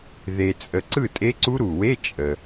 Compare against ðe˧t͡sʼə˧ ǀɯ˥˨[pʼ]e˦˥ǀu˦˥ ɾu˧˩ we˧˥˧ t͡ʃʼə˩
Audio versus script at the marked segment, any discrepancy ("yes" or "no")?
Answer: yes